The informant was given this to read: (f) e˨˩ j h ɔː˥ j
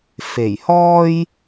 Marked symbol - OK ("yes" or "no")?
yes